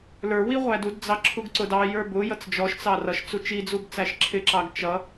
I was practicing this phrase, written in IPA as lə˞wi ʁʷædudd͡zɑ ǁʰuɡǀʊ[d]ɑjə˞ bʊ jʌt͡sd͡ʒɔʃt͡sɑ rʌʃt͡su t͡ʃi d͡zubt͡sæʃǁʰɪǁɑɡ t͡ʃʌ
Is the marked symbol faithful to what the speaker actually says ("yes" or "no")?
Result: yes